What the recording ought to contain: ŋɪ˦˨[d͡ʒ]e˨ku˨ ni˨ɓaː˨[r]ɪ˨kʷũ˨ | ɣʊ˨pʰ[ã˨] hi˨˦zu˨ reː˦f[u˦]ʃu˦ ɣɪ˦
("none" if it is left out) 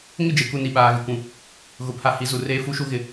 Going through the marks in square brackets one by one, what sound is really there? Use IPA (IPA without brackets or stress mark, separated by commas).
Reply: d͡ʒ, ɣ, a˨, u˦